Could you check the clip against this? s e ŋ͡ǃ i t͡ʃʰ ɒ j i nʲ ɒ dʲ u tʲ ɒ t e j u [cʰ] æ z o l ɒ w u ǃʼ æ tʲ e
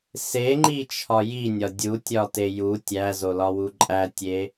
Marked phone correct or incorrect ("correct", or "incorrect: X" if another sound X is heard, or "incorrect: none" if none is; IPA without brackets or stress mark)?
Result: incorrect: tʲ